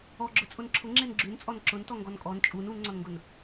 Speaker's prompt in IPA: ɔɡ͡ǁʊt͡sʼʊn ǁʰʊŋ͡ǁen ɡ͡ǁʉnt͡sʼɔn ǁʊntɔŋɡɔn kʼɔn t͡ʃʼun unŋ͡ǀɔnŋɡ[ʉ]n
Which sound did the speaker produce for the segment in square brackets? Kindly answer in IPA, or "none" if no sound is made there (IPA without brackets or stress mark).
ʊ